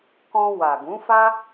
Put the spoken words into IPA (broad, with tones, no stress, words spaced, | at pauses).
kɔ̃˧ wa˨ɡũ˨˦fa˦